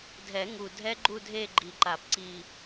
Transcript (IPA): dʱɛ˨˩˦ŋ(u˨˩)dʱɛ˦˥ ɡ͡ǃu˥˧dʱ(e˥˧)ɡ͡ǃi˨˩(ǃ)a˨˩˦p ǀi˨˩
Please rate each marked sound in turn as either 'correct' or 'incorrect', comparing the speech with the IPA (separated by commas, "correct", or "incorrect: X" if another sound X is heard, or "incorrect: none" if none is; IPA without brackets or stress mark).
correct, correct, correct